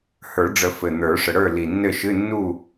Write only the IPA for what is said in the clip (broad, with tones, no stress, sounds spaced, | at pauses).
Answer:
h ə˞˨˩˦ ɖ͡ʐ ə˨˩˦ f ɘ˨˩ n̪ ə˞˨˩˦ ʂ ə˨˩ ɽ ə˞˥˨ l i˨˩ nː ɘ˥˨ ʃ ɨ˧˥˧ nː u˥˨